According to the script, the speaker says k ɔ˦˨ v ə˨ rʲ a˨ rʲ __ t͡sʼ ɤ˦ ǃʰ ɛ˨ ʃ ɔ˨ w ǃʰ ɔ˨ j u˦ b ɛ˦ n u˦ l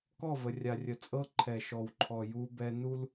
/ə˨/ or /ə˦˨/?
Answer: ə˨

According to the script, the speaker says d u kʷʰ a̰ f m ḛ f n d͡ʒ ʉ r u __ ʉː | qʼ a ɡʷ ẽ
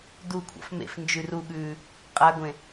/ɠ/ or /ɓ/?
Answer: ɠ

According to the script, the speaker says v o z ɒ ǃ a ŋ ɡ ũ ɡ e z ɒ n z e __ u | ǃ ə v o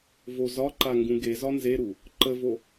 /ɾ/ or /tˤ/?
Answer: ɾ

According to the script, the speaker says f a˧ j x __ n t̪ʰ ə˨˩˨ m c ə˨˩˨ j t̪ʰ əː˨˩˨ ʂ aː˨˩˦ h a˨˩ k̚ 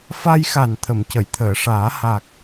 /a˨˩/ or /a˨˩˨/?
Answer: a˨˩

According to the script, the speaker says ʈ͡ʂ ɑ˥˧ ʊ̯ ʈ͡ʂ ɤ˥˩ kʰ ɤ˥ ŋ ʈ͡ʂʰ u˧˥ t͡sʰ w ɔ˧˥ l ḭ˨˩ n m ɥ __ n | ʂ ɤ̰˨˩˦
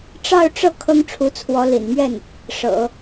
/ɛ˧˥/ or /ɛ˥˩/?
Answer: ɛ˥˩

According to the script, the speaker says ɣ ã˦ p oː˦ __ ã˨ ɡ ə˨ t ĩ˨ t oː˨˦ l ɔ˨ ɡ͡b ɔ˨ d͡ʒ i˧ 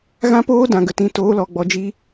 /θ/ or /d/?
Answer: d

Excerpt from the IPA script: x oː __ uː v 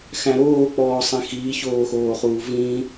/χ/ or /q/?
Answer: χ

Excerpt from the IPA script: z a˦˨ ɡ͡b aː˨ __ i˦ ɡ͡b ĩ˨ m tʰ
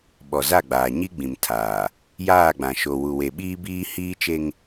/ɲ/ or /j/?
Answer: ɲ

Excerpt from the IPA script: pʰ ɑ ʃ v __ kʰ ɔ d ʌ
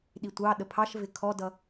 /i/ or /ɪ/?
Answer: ɪ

